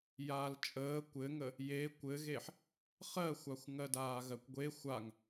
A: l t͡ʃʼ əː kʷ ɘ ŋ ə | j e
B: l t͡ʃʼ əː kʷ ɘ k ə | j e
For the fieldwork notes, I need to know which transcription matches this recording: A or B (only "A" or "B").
A